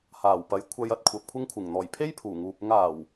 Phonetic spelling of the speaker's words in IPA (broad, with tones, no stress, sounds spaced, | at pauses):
h aː˨˩ w p ɐ˨˥ j kʷʰ ɐ˧ j ɐ˨ t̚ kʷʰ ɐ˨ p̚ kʷʰ ɪ˥ ŋ kʷʰ ɪ˨˩ ŋ n̪ ɔː˨˩ j pʰ e˥ j pʰ uː˨˩ ŋ uː˨ p̚ ʊ˥ ŋ aː˨˩ w